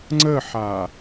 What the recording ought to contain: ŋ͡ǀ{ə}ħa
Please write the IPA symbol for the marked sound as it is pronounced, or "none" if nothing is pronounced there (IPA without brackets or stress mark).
ə